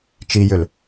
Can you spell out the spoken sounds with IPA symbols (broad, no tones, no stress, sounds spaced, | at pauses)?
t͡ʃ i j ʏ l